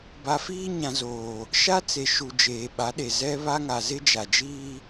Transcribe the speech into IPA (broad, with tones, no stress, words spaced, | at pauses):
ba˨fiː˦ɲã˨ zoː˨ | ʃa˦t͡se˨ ʃu˨ d͡ʒeː˨ɓa˨˦ɗe˨ zɛ˦βa˦ŋa˨ zɪ˦d͡ʒa˨d͡ʒiː˦